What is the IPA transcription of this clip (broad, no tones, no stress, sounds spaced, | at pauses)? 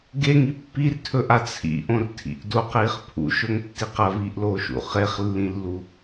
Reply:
ɡ e ŋ i pː i r tʰ ɵ ʔ a t͡sʰ ḭ ʔ õ r tʰ ḭ ʔ d o q iː χ pʰ ṵ ʃ ɵ ŋ tː i q ɐ v iː ʔ l oː ʃ ṵ χ e χ lː ĩ lː u